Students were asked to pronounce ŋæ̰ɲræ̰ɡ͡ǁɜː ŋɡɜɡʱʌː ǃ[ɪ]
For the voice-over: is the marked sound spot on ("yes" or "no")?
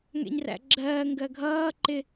yes